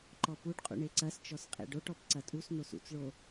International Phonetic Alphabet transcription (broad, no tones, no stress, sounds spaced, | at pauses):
ǃ ɔ p u ɖ qʼ ṵ ɳ e ǀ ɐ s t͡ʃ ɔ s qʼ ḛ ɖ o ʈ ɔ p ǀ ɐ tʼ u s n o s ṵ t͡s ɭ o